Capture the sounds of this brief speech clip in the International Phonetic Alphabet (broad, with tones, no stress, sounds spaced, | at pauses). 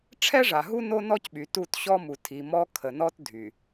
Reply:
ʈ͡ʂʰ ɛ˦ ʐ a˨ ɦ u˦ n o˦ n ɔ˦ c ɓ y˨ t u˦˨ t ɕ ɔ˦ m u˨ tʰ i˨ m ɔ˦ kʰ ə˨ n ɔ˦ t dʱ y˨